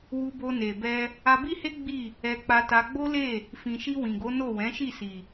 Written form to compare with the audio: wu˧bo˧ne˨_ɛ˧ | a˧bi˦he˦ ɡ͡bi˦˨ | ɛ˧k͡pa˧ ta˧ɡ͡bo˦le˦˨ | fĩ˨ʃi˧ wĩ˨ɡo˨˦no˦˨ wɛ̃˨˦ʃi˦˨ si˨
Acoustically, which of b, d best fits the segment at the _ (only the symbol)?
b